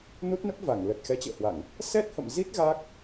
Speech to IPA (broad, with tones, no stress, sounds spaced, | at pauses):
n u˦˥ t̚ n ə˦˥ p̚ v a˧˩ ŋ l ə˨˩ t̚ x ɛ˨˦ t͡ɕ ə̰ː˧˨ h w a˧˩˨ ŋ | s ɛ˦˥ t̚ h ə̰˧˨ m z i˦˥ t̚ ɣ a˦˥ k̚